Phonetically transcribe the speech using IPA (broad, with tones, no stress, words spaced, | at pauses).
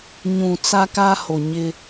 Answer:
ɲũ˨ t͡sa˦ka˦ ho˨ɲɪ˦